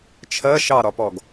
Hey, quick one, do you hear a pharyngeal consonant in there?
no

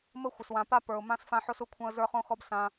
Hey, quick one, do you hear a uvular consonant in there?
yes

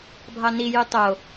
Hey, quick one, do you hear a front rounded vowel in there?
yes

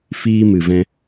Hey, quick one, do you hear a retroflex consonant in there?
no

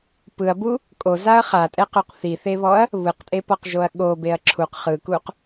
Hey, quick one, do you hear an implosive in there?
yes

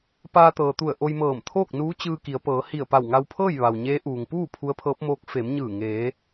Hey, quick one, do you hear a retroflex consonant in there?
no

